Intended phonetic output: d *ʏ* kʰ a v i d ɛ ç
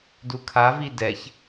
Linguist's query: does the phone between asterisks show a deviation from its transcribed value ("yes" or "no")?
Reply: yes